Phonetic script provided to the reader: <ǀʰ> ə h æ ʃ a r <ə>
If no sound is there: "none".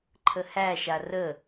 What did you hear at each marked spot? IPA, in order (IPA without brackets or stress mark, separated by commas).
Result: ǃʰ, ə